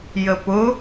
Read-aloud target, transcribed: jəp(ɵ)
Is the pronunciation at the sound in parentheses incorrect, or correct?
incorrect